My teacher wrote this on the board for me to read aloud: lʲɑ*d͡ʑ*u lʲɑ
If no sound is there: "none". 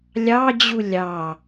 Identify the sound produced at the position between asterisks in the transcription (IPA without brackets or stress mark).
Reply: d͡ʑ